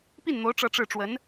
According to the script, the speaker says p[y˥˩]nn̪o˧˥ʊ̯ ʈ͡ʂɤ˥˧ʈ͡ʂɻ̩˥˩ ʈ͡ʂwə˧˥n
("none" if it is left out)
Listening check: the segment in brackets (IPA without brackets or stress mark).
i˥˩